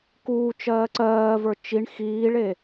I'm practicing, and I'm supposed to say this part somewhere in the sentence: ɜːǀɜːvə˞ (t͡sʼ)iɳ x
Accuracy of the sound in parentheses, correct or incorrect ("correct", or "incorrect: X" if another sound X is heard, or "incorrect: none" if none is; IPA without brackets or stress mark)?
incorrect: t͡ʃ